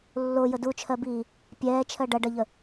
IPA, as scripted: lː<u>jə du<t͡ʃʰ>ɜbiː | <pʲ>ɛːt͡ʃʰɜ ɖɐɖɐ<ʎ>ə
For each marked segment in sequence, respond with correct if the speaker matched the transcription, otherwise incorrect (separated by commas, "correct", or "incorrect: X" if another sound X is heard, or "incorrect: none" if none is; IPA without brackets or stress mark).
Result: incorrect: o, correct, correct, correct